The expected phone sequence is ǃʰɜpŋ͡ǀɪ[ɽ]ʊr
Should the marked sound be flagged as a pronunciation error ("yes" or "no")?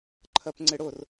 no